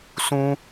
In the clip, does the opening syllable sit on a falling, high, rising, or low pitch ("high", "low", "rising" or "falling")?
high